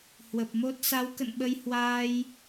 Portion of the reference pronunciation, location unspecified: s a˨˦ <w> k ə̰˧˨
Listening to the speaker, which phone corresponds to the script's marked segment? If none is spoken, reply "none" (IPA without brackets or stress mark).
w